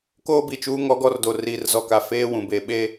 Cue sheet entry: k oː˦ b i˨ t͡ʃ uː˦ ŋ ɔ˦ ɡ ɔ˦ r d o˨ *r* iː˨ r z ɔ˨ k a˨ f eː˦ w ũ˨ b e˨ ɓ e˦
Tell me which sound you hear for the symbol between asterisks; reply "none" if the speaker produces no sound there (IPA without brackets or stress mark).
r